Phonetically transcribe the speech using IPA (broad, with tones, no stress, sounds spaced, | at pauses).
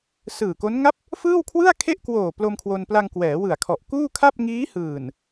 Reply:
s ɯː˨˩ k o˦˥ n ŋ a˦˥ p̚ | f ɯː˥˩ w kʰ w ɯ˥˩ a̯ kʰ e˥˩ ʔ k w oː˨˩ p l o˧ m kʰ w o˧ n p l a˧ ŋ k w ɛː˩˦ w ɯ˨˩ a̯ kʰ ɔ˨˩ ʔ k uː˥˩ kʰ a˥˩ p̚ ŋ iː˦˥ h ɯː˨˩ n